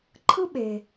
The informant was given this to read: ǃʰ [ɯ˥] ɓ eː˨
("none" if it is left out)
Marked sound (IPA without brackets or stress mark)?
ɯ˥